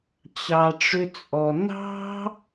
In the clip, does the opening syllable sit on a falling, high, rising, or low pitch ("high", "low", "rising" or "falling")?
low